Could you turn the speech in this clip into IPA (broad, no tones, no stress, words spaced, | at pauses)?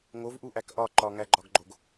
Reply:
ŋovʔuʔæk ʔɒ ǃɒŋæɡ͡ǃɒɡɡ͡ǃoɡ